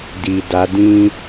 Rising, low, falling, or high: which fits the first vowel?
low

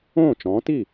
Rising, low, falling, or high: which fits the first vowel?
falling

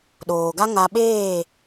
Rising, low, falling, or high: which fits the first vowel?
low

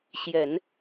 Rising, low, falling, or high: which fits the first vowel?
low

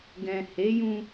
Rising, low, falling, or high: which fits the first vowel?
low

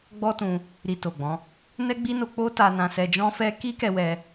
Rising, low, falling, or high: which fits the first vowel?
high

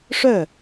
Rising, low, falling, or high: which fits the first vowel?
falling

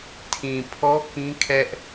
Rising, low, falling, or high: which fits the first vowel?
low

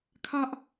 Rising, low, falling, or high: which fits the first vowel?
high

